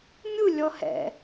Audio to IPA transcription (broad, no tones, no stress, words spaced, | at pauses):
mʲu lʲɔhɛ̰